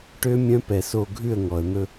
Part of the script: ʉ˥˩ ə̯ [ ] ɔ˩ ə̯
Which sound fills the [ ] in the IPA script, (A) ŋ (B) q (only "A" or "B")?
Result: A